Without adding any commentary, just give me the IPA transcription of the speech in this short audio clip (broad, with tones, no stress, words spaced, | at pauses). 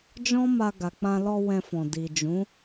d͡ʒɔ̃˦ma˧ ɡa˨k͡pã˧lɔ˧ wɛ̃˧fɔ̃˨ di˨d͡ʒũ˨˦